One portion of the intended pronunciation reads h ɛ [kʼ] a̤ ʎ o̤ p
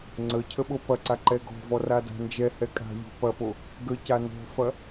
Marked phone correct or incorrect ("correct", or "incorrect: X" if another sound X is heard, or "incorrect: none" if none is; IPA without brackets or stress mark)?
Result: correct